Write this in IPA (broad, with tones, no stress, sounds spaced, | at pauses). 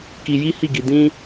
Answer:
k i˧ j i˦ h i˦˨ ɡ i˧ d ĩ˦